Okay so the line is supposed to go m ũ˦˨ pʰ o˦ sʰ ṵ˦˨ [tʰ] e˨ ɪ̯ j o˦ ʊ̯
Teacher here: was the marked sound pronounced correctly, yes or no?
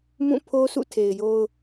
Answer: yes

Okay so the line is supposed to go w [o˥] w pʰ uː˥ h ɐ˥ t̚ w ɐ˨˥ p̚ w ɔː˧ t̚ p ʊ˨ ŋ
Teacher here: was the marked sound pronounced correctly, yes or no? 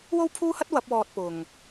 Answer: yes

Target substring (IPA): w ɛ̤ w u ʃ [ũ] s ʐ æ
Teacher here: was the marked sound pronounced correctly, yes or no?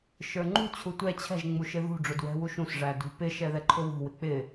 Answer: yes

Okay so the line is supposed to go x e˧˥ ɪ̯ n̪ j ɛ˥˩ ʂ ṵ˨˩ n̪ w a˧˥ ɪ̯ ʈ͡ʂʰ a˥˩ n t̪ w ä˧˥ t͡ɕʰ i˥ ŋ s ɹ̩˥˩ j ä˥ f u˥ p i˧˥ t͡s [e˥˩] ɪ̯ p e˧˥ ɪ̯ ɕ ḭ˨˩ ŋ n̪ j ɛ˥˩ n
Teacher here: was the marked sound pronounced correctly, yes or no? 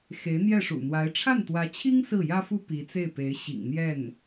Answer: yes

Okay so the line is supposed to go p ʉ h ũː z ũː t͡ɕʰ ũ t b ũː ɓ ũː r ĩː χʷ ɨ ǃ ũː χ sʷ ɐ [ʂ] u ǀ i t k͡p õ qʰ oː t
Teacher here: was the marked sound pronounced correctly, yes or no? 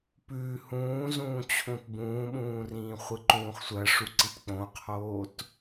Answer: yes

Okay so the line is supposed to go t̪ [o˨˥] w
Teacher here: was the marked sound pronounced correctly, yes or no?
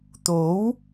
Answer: yes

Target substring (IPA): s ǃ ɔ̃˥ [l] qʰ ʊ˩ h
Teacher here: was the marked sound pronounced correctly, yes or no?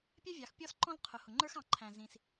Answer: yes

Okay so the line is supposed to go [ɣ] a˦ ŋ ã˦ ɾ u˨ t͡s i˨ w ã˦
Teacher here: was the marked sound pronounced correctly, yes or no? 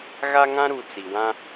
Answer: yes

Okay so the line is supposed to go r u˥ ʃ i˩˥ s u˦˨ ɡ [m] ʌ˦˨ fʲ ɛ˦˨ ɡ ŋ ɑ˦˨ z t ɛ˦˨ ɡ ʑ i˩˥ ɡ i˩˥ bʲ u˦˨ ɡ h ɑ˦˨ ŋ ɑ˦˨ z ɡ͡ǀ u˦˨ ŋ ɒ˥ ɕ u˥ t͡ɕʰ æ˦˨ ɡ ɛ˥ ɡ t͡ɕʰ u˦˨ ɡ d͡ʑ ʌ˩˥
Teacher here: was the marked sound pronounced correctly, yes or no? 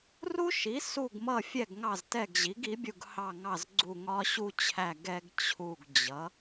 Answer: yes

